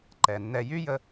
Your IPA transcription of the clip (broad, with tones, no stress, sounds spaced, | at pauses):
ǃ ɛ˩ nː ɛ˨ j y˥ j ə˦